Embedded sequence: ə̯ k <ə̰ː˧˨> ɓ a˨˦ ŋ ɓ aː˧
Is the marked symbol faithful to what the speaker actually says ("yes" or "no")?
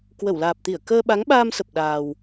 no